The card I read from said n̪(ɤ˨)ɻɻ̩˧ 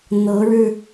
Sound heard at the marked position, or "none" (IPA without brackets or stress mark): ɤ˨˦